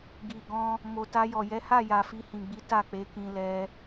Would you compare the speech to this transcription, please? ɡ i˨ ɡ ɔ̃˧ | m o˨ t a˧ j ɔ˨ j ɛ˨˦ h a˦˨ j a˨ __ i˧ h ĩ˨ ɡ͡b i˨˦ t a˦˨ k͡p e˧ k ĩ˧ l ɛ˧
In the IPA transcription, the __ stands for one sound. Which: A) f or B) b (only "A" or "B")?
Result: A